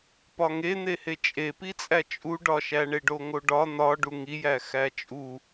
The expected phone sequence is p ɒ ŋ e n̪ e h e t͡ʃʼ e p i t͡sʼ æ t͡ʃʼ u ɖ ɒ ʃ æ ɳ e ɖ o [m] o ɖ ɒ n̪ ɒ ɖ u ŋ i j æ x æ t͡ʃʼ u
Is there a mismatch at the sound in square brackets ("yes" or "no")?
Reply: yes